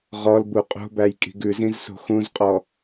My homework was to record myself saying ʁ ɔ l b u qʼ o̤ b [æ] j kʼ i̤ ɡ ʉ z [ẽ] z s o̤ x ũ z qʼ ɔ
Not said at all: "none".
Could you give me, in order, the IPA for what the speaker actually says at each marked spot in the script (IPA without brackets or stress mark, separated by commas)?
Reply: æ, ĩ